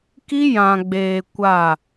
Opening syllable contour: high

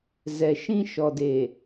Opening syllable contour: low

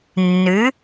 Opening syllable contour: rising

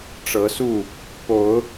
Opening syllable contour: rising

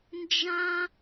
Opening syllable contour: high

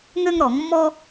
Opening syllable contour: high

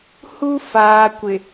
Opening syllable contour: high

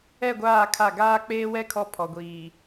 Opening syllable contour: falling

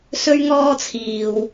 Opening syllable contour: high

